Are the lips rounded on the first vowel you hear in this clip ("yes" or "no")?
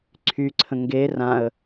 yes